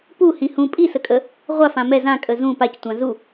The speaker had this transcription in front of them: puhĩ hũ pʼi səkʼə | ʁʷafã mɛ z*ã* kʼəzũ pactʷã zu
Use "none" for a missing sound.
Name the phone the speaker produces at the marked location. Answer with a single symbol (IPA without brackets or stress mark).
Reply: ã